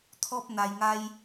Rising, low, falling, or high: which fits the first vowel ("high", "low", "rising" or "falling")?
high